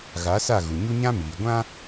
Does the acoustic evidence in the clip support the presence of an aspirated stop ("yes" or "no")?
no